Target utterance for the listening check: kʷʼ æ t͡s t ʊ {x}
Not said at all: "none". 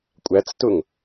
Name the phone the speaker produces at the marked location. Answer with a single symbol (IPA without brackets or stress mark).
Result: ŋ